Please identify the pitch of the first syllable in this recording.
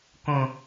high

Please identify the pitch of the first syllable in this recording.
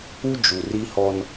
high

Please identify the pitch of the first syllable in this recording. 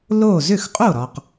falling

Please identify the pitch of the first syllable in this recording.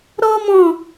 high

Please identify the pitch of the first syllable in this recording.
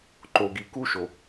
low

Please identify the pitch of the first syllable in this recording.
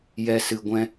low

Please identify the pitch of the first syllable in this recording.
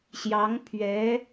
rising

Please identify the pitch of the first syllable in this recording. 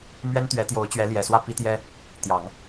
high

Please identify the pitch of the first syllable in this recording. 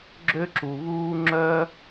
high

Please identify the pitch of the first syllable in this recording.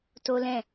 high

